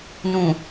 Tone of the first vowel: low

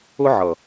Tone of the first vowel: high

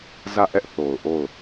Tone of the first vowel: falling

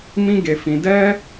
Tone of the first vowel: high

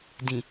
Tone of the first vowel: low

